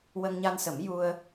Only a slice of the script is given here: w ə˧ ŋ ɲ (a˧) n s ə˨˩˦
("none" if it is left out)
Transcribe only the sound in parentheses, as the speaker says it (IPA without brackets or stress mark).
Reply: a˧